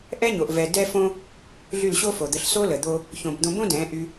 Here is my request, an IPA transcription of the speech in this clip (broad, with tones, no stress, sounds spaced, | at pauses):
ʔ ɛ˦ ɲ o˨ ʔ v ɛ˨ d ɛ˦ f õ˦ | ɮ y˦˨ l ɕ o˦ f o˨ d̪ ə˧ ɬ s o˦ l ə˨ d̪ o˦ | ç õ˨ b d̪ õ˧ b õ˦ d ɛ̃˨˦ ʔ y˧